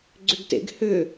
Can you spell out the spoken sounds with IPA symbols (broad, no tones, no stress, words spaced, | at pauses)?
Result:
ɡ͡ǀʏɡtḛɡ hʏ